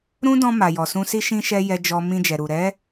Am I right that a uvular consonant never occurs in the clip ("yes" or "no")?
yes